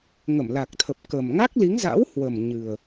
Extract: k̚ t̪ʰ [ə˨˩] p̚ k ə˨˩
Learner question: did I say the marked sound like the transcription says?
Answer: yes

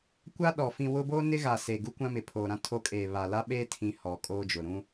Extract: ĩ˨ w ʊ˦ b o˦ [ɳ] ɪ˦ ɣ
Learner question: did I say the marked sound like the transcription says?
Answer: no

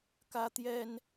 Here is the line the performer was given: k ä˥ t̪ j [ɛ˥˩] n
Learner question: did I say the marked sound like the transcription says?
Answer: no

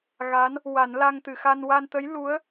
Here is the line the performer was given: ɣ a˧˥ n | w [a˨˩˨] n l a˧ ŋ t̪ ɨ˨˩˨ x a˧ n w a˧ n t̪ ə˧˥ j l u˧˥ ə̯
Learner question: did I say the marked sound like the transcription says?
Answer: no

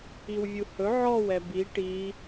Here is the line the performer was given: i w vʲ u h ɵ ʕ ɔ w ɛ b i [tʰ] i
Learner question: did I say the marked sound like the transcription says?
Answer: no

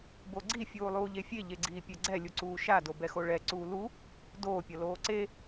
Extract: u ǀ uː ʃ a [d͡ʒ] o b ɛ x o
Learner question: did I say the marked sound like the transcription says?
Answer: no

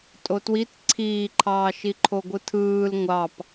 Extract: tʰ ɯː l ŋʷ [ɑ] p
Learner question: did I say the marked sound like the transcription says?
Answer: yes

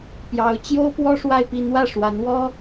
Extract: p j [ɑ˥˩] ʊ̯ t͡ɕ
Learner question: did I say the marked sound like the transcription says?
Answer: no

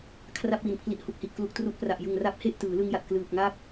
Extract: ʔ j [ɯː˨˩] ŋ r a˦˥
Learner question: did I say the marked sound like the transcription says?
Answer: no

